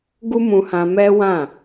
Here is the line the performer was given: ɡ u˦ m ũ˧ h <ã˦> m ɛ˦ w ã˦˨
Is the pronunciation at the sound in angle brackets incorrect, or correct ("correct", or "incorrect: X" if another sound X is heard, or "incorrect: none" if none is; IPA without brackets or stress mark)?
incorrect: ã˧